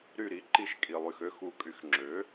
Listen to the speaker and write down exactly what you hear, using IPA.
ɾ y˧˩ ɾ i˩˥ ǃ i˧˩ ʃ kʼ i˩ lˠ y˩ x ø˦ x u˩˧ kʼ y˩˧ x ŋ͡ǁ ø˩˥

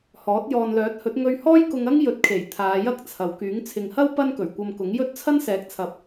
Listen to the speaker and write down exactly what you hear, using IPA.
h ɔː˨˥ t̚ j ɔː˨ n l œː˨˥ t̚ h ɵ˨˥ t̚ ŋ ɵ˧ ɥ h ɔː˥ j k ʊ˧ ŋ ɐ˥ ŋ j ɵ˨˥ t̚ kʰ e˨˩ j t̪ʰ aː˨˧ j ɐ˥ k̚ t͡sʰ ɐ˨ w k yː˨˥ ŋ t͡sʰ ɪ˨ ŋ h ɐ˥ w p ɐ˥ n k ɵ˨˩ ɥ kʷ ɐ˧ m k ʊ˨˥ ŋ j ɵ˥ t̚ t͡sʰ ɐ˥ n s ɛː˨˥ k̚ t͡sʰ ɐ˨˥ p̚

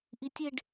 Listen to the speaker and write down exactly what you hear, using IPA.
ʔ i tʲ e ɖ

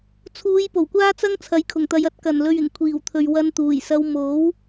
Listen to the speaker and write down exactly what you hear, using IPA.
t͡sʰ uː˨˧ j p o˨˩ w kʷ aː˥ t͡s ɐ˥ ŋ t͡sʰ ɐ˨˥ j kʰ ʊ˨˩ ŋ t̪ ɐ˨˧ j ɐ˨˥ t̚ k ɐ˨˩ n l ɵ˨ ɥ ɪ˨˩ ŋ kʷʰ iː˨˩ w t̪ʰ ɵ˨ ɥ w ɐ˧ n t̪ uː˨˩ j s ɐ˧ w m o˨˥ w

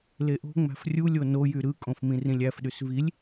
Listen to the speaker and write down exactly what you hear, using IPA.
l e ʔ o̤ ŋ͡m æ̤ f rʲ u lʲ o n o j y ɾ ɯ kʼ õ f m ĩ r ĩ lʲ æ f ɗ y s v i lʲ

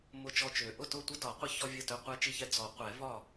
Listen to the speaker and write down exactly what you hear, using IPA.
m ʊ˥˩ t͡ʃ ɔ˥˩ t͡ʃ ø˨˩˦ ʔ ʊ˥˩ t ʊ˥˩ tʷ ə˥ d ɒ˨˩˦ qʷ ə˥ ç ɔ˥ vʲ ɐ˥˩ t ø˥˩ qʷ ɛ˥˩ t͡ʃ i˥˩ ç ɛ˥ d͡z ɔ˨˩˦ qʷ ɛ˨˩˦ v ɒ˥˩

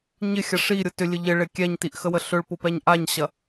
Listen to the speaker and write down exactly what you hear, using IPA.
ɲ ɪ xʲ ɐ ʂ i ɾʲ ʊ t ʏ lʲ ə ʎ ɪ ɭ ɪ kʲ ɛ ɲ t i ʔ x ə w ə ɬ ʏ ɭ p ʊ p ɛ ɲ ʔ a ɲ ɕ ɐ

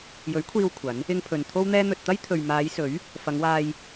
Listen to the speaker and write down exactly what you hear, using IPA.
j ɵ˨˥ ɥ kʷʰ iː˧ w kʷʰ ɐ˨˥ n | ɪ˧ ŋ pʰ ɵ˨ n t̪ʰ o˥ w n̪ ɛː˥ n̪ ɵ˧ t̚ t̪ ɐ˥ j t̪ʰ ɵ˨ ɥ m aː˨˧ j s ɵ˨˥ ɥ | f ɐ˨˧ ŋ w aː˧ j

